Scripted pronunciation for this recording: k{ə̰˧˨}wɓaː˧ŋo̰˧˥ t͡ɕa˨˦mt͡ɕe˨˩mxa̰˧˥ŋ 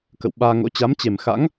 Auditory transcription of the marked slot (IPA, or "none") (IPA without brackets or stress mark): ə̰˧˨